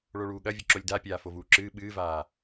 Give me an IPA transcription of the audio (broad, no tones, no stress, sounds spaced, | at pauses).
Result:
ɭ o ɭ uː ɠ ɐ vʲ ɐ ǁ o lʲ d a pʲ aː f o v uː ǁ ɨː ɓ ɨː v aː